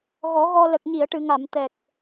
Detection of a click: absent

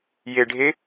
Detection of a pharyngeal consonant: absent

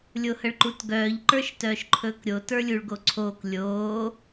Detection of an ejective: absent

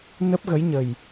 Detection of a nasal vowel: absent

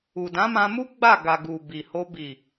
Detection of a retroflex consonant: absent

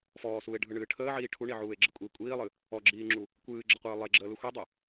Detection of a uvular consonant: present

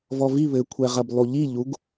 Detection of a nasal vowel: absent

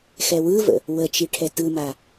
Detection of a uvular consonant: absent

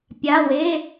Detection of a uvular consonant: absent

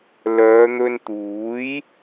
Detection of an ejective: absent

